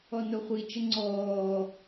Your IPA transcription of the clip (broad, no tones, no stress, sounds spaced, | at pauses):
ɔ n o χʷ i t͡ʃ ə ŋ͡ǀ ɔː